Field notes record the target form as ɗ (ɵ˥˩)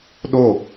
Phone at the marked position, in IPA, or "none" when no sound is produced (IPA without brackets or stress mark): o˥˩